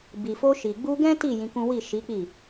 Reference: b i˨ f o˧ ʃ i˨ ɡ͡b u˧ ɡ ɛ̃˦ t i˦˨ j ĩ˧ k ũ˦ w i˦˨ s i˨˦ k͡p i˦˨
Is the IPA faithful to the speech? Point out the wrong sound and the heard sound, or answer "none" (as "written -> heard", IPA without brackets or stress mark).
s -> ʃ